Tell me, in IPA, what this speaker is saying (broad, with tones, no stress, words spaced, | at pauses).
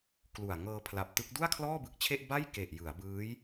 klu˨˩a̯ ŋɤː˧pʰla˨˩p̚tɯ˦˥k̚ du˥˩a̯kʰlɔː˥˩bɯ˨˩k̚t͡ɕʰe˥˩ʔ ba˥˩j ke˨˩ʔ jɯ˩˦a̯bɯː˦˥j